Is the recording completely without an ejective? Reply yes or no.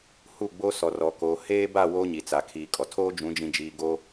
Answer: no